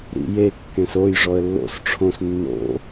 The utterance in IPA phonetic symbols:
ɾ ḭ j e kː ẽ s o j ʐ ɔ ə̯ lː o̰ s ʈ͡ʂʰ õ s nː o̰

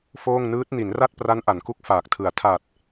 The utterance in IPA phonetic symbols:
f oː˥˩ ŋ n ɯː˦˥ t̚ n i˩˦ n r a˥˩ t̚ p r a˦˥ n ʔ a˩˦ n k u˦˥ k̚ f aː˨˩ k̚ tʰ ɯ˨˩ a̯ tʰ a˨˩ t̚

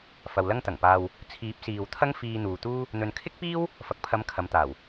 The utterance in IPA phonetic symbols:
f ɐ˨ w l ɐ˥ ŋ t̪ ɐ˨˩ ŋ p aː˧ w | t͡sʰ iː˨˥ p̚ s iː˨ w t̪ʰ ɐ˥ ŋ f iː˧ n̪ uː˨ t̪ uː˥ | n̪ ɵ˨ n kʰ ɪ˥ k̚ p iː˥ w | f ɐ˨ k̚ pʰ ɐ˨˧ m kʰ ɐ˨˧ m t̪ aː˨˩ w

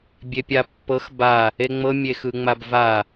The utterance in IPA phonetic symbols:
bʲ e pʲ a pː ɤ x b a | e ŋ͡m ɤ mʲ e x ɯ ŋ͡m a b v a

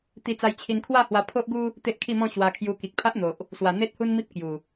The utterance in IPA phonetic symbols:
t̪ i˧ t͡s a˧ j t͡ɕʰ i˧ n kʰ w a˥˧ h w a˧ pʰ o˦ ʔ ɡ u˦ | t̪ e˦ ʔ kʰ i˥˧ m ɔ̃˥˧ ɕ w a˧ kʰ j u˧ k i˨ k̚ pʰ a˦ ʔ n̪ o˨ ʔ | s w a˨˩ n̪ e˦ t̚ h u˦ n m i˦ p̚ k j u˨˩

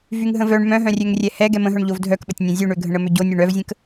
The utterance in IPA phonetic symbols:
v y ŋ ɦ ə̃ v œ ɳ m œ̃ ɦ œ̃ rʲ ø ŋ rʲ ɛ h ɛ ɡ ɛ m ə̃ ɦ œ ɳ ʎ o v dʱ œ k ɓ ə tʲ nʲ œ̃ zʲ ø ɳ ø ɡʱ ə̃ ɳ ə m ø ɟ o nʲ ø ɳ œ v zʲ ə̃ k

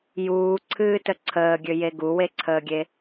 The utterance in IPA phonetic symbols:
j uː ǀʰ ɨː t ə ǀʰ əː ɡʲ ø j e ɡ u w e ǀʰ əː ɡʲ e

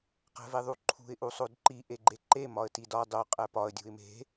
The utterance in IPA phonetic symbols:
q æ̤ v e ðˤ u ǃʰ ṳ ɪ̯ ʔ u sˤ o d ǃ i ʔ e ɡ͡ǃ e ǃ e m ɒ ə̯ t i d ɒ dˤ o qʼ æ p ɒ ə̯ dʲ ṳ ɪ̯ m e̤

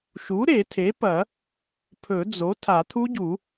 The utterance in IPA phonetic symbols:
ʃ u˩˥ ɾ e˨˩˦ tʰ e˩˥ p ɐ˨˩˦ | pʰ ɵ˨˩˦ d͡z o˩˥ tʰ a˨˩˦ t̪ʰ u˦˥ ɟ u˨˩˦

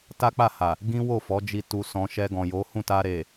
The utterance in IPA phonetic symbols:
t a˦ k͡p a˦˨ h a˨ | ɡ ĩ˦ w o˦˨ f ɔ˨˦ d͡ʒ i˧ t u˧ s ɔ̃˧ ʃ ɛ˧ ɡ ɔ̃˨ j o˨˦ h ũ˦˨ t a˧ ɾ e˨

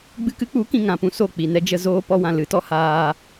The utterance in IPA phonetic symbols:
ɡ͡b ɨ˧ k ɨ˦ k͡p u˨˦ k ĩ˨ ŋ ã˨ p ũ˧ s o˦˨ k͡p i˨ n ɛ˦ d͡ʒ ə˧ z oː˦ p ɔ˦ w ã˧ l ɨ˨˦ t ɔ˦ h aː˧

